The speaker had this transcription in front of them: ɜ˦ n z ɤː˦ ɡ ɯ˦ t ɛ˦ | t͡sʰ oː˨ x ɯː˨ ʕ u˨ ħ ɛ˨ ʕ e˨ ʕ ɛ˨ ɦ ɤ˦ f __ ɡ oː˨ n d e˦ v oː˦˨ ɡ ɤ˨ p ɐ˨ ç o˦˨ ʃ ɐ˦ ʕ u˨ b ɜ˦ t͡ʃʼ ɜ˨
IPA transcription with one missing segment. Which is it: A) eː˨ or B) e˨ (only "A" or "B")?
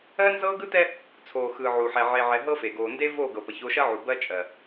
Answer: B